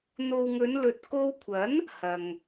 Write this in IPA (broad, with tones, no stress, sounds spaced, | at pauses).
n̪ o˨ w ŋ ɵ˨˧ n l ɵ˨ t̚ k o˧ w kʷʰ ɐ˨˥ n | h ɐ˨ ŋ